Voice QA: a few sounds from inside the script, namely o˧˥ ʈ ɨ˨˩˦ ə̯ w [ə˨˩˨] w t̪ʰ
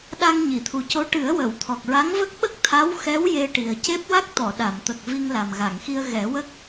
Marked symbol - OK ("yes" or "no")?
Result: yes